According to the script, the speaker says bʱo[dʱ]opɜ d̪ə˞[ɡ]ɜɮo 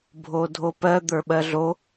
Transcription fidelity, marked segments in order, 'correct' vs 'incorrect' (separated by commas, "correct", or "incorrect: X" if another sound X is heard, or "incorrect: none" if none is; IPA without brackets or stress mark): correct, incorrect: ɓ